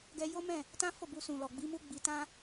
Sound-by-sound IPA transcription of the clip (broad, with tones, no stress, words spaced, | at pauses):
ɡɛ˧jo˦mɛ̃˦˨ | tã˦fo˦˨ bu˧sũ˨lɔ˨ ɡ͡bi˨˦mu˦ ɡ͡bi˧ tã˦